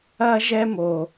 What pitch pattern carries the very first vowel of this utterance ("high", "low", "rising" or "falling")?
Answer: high